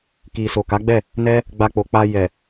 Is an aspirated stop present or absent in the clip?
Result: absent